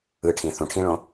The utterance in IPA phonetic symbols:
ɯ ʈʰ ĩ θ ũ ʈʰ ĩ ɭ õ

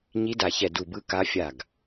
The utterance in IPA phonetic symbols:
ɲ i˧˥ d a˧˩ ç ɛ˧˩ d u˧˩ b ɯ˧˥ k a˧˥ fʲ a˧˩ ɡ

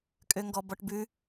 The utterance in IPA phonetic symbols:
kʼ ø ŋ ɡ ɔ b ɔ ʈ b ʉ

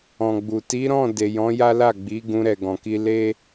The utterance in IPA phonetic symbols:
ɔ̃˨ ɡ͡b u˨ t i˨˦ ɾ ɔ̃˦˨ d e˨ j ɔ̃˨˦ j a˦ l a˦˨ ɡ͡b i˨˦ ɡ ũ˧ ɾ ɛ˨ ɡ ɔ̃˨ k i˧ l e˦

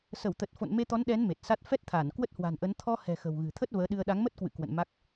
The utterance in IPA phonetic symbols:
s ə˧˩ w t̪ ə˨˩ t̚ f o̰˧˨ n m e˧ t̪ ɔ˨˦ n ɗ ɛ˨˦ n m e˨˩ t̚ s a˦˥ t̚ f ɛ˦˥ t̚ t̪ʰ aː˧˩ n k w ə˦˥ t̚ h w a̤˨˩ n ʔ ə˨˦ n t̪ʰ ɔ˧ h ɛ̤˨˩ x ə̤˨˩ w ɣ ɨ̤˨˩ t̪ʰ ə˦˥ t̚ v əː˨˦ ɗ ɨ˧ ə̯ ɗ a˨˦ ŋ m ə˦˥ t̚ k w ɨ̰˧˨ k w ə̰˧˨ n m a˦˥ k̚

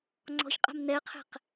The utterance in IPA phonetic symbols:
ŋ͡ǀ ɔ̤ ç qʼ a̤ m n ɛ ə̯ qʰ ɛ̤ q

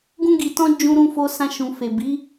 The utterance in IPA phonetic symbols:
ɡ ũ˧ ɡ i˨ t ɔ̃˧ d͡ʒ ũ˧ ɾ ũ˧ f o˧ s ã˧ ʃ ũ˨ f e˨ b i˨˦

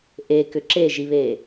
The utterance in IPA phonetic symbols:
ʔ e k ʏ ǁ e ʒ i β e

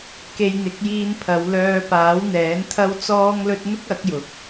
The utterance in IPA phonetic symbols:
k e˧ j n̪ ɪ˨˥ k̚ j iː˧ n pʰ ɐ˨˧ w l œː˧ p aː˨˥ w n̪ ɛː˨˥ n t̪ʰ ɐ˥ w t͡s ɔː˥ ŋ l ɵ˥ t̚ n̪ ʊ˥ k̚ ɐ˨˥ k̚ j ʊ˨˥ k̚

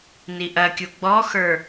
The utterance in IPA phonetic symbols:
n i ʔ ɐ kʲ u ɡ͡b ɔ x ə˞

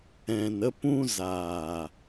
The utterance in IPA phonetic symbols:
ɛ̃˨ n ə˧ p ũ˧ z aː˨

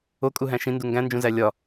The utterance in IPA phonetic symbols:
o kʼ u ɦ æ̃ ʃ ĩ n d u ŋ ɡ æ̃ n d͡ʒ ũ z æ lʲ ɒ

